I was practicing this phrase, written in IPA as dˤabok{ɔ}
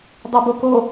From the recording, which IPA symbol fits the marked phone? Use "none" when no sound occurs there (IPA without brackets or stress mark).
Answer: o